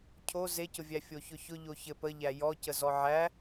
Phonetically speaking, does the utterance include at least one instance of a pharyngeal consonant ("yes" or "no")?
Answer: yes